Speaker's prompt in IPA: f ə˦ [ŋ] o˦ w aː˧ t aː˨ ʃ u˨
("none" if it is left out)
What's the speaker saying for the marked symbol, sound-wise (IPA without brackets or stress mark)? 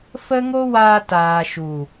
ŋ